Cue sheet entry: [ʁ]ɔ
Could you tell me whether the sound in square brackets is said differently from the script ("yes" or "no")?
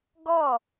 yes